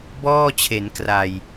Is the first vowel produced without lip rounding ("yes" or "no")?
no